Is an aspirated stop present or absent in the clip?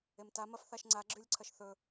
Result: present